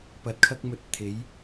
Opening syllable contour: low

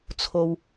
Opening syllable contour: low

